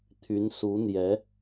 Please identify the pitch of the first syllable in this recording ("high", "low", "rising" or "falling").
rising